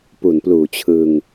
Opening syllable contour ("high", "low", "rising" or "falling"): low